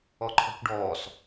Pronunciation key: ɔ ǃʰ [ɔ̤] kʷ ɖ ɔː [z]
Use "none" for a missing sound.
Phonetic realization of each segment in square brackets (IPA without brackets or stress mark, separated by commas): ɔ̤, s